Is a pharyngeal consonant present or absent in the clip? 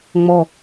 absent